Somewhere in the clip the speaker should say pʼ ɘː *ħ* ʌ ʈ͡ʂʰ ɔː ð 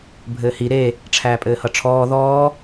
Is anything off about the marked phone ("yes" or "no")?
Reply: yes